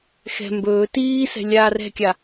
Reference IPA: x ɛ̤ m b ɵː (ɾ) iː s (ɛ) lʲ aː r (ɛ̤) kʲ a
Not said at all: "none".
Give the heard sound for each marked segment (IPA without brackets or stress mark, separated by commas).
t, ɛ̤, ɛ̤